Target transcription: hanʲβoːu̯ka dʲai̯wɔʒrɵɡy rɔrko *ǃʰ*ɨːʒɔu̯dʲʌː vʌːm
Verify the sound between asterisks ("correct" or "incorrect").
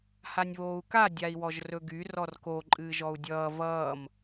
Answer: incorrect